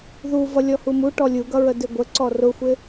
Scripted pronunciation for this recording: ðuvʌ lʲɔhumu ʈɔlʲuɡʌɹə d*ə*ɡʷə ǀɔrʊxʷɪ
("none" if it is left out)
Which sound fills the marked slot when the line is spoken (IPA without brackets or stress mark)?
ɪ